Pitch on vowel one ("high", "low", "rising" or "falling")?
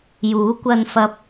rising